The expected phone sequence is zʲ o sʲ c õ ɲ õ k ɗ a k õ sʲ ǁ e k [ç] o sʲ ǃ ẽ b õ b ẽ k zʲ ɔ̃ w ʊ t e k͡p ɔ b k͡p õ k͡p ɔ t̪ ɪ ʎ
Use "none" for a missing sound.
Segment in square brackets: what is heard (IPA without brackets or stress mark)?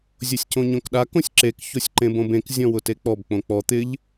ç